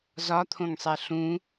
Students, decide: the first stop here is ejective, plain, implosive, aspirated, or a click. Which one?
aspirated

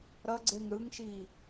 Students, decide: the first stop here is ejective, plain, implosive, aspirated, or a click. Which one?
click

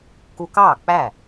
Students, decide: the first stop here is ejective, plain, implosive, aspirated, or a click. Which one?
plain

